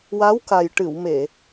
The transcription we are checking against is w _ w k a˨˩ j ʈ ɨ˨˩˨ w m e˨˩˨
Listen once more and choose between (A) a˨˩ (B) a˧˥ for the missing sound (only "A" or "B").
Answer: B